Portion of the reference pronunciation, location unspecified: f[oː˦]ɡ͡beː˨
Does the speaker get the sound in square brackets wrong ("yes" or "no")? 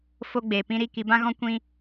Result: yes